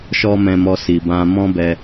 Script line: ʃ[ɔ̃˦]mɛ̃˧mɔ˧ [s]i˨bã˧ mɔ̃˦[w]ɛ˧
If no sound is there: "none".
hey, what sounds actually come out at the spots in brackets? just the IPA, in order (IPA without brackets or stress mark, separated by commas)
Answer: ɔ˦, s, b